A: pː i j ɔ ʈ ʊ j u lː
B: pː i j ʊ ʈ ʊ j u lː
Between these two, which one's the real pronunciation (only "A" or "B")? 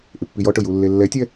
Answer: A